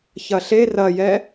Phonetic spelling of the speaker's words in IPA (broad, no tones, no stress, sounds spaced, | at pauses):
ç ɐ ɬ e r ɐ j ɛ